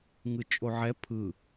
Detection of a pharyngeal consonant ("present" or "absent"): present